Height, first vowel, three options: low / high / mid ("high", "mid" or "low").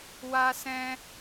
low